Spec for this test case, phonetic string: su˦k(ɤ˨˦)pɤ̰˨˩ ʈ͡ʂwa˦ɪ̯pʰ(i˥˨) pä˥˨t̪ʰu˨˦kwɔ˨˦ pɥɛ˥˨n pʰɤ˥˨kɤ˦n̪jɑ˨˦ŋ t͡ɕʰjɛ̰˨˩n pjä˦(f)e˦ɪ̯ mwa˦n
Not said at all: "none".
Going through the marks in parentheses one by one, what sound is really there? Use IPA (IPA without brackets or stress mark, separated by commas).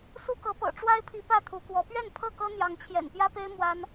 ɤ˨˦, i˨˦, p